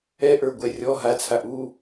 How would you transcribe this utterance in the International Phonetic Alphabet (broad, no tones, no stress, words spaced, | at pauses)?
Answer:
ɛʔə˞ɡʷɛ rʲɔ ɦat͡sʰa ʔu